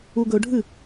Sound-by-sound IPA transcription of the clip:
u ɡ ɵ ɖʱ ɨ

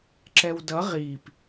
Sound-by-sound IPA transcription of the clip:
ǁ ɛ w d ʌ ʁ i p

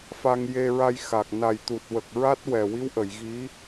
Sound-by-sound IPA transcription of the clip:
f a˧ ŋ j e˧ ɹ a˧ j x a˨˩ k̚ n a˨˩ j t̪ u˨˩ t̚ w ə˨˩ k̚ ɹ a˦˥ t̚ w ɛ˨˩ w i˧˥ w ʔ ə˨˩˨ j ɣ i˧˥

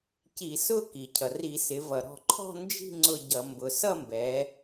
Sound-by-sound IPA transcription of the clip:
c i˧˩˧ s ʊ˥˧ k i˩ cʰ ʌ˩ r i˧˩˧ s ɪ˩˧ v ʌ˩ ɾ ɔ̤˧˩ ǃʰ ɔ̤˥˧ n d͡ʒ i̤˥˧ ŋ͡ǀ ʊ˥˧ ɟ ʌ˧˩˧ m b ʊ˩ s ʌ˥˧ m b ɛ˩˧

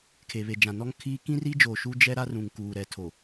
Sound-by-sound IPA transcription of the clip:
kʰ e˨ β e˨ d͡ʒ ã˨ n ɔ˦ ŋ kʰ iː˦ k ĩ˦ r i˦ d͡ʒ oː˨ ʃ u˦ d͡ʒ ɛ˦ ɾ a˦ r ũ˨ ŋ k uː˨ ɾ ɛ˨ tʰ o˨

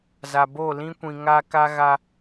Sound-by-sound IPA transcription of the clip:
z a˨ b o˦˨ l ĩ˦ kʷ ĩ˨ ŋ a˦ k a˦ ɣ a˦

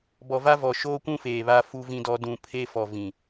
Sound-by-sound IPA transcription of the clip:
b ɔ˨ v a˦ v ɔ˨ ʃ oː˦ kʷ ũ˦ f eː˨ β a˦ f u˦ v ĩ˦ d ɔ˦ d ũ˨ pʰ e˦ f ɔ˨ v ĩ˨

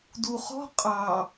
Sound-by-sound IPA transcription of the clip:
d u χ ɔ̤ qʼ ɑ

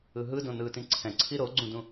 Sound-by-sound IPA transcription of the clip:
ɯ ɦ ɯ d õ n ɯː t ĩ ǀʰ ɛ̃ ǀʰ i ɾ o ɡ͡ǀ ũ d ũ

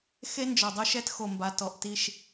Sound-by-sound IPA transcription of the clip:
x e˦ n d͡ʒ ɔ˨ dˤ o˦ ʃ ɛ˦ t x o˨ m b a˨ t ɔ˨ ʔ t i˦˨ ʃ

